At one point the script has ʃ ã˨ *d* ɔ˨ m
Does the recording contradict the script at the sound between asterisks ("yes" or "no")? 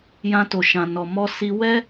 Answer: yes